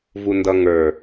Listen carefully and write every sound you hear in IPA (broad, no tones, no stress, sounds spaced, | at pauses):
v u n d ʌ ŋ ə˞